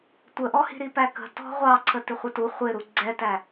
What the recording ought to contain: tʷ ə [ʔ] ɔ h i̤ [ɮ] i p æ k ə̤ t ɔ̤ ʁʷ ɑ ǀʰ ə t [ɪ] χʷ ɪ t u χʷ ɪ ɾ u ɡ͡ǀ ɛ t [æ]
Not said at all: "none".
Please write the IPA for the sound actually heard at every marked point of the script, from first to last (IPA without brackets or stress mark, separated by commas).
ʔ, ɾ, ɪ, æ